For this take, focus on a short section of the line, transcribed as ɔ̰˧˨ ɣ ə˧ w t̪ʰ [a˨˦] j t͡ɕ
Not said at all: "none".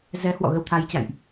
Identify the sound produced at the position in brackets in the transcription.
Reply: a˨˦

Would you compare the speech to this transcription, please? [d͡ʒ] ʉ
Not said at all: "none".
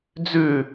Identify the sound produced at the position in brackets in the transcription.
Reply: d͡z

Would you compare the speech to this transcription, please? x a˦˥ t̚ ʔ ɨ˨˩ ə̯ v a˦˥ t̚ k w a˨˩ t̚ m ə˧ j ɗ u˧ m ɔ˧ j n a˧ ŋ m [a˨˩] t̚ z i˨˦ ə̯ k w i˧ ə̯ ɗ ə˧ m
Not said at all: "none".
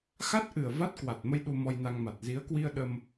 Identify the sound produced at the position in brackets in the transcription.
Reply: a˨˩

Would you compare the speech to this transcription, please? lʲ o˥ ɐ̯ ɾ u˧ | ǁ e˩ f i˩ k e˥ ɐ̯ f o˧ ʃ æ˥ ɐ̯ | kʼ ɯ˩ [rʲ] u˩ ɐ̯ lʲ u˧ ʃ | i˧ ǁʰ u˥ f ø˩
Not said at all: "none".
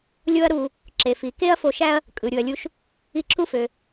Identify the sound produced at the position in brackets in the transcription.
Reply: ɾʲ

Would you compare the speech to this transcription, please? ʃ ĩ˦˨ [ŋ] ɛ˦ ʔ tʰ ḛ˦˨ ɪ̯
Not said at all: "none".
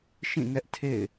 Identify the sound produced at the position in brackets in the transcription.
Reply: ŋ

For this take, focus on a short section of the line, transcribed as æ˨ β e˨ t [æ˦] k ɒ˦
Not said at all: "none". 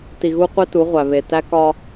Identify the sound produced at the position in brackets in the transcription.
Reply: æ˦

